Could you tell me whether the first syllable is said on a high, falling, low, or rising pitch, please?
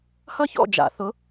falling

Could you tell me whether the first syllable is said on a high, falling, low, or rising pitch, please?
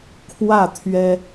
falling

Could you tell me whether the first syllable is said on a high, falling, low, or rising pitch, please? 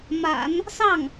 low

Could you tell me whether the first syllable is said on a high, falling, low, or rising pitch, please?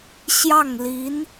falling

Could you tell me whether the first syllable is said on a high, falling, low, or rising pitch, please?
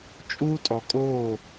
high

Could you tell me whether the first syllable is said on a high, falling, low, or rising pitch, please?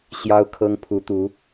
high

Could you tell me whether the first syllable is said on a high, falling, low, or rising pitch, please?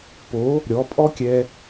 rising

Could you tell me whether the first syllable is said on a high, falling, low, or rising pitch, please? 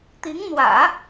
rising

